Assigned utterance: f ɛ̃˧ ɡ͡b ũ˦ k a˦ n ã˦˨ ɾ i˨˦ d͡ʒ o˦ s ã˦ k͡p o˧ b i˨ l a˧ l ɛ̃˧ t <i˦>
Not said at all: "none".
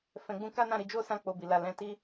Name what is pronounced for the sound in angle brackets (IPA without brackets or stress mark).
i˦